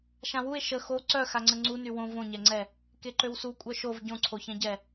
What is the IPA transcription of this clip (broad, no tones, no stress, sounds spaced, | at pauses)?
ʃ ã w u e̯ ʃ ə x o ǀ œ x a ŋ͡ǀ ə ŋ͡ǀ u n y w õ v õ ɲ ɛ ŋ͡ǀ ɛ | k e ǃ ø w s u kʷʼ œ ʃ o v ɟ õ ǀʰ o ç ɛ̃ ɟ ɛ